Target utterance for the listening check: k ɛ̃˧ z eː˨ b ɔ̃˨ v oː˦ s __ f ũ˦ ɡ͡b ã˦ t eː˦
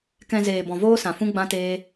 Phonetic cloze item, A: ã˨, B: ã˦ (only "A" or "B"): A